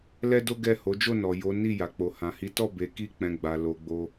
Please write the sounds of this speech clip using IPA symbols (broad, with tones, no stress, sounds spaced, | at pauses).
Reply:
l ɛ˦ d o˦ ɡ ɛ˦˨ h o˨˦ d͡ʒ o˦˨ n ɔ˨ j o˨˦ n i˦˨ j a˨ k͡p o˨ h ã˨ h i˨˦ t ɔ˦˨ b e˧ k i˦ k͡p ɛ̃˧ ɡ͡b a˨ l o˨ ɡ͡b o˧